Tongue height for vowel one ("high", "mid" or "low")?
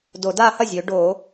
mid